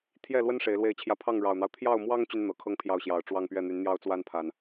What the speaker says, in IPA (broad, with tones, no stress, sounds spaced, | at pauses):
t̪ʰ j ɛ˥˨ l w ə˦ n ʂ e˨˦ ɪ̯ l w e˥˨ ɪ̯ t͡ɕʰ j ä˥˨ pʰ ɑ˥˨ ŋ ɻ ɑ˨˩ ʊ̯ n̪ ɑ˦ ʊ̯ t̪ʰ j ɑ˥˨ ʊ̯ m w ɑ˦ ŋ t͡ɕ y˦ n n̪ ɤ˨˩ kʰ ɤ˥˨ ŋ pʰ j ɑ˥˨ ʊ̯ ɕ j ɑ˨˩ ʊ̯ ʈ͡ʂ w ɑ˥˨ ŋ p ɥ ɛ˥˨ n̪ y˨˦ n n̪ j ɑ˦ ʊ̯ t͡s w a˦ n pʰ a˨˩ n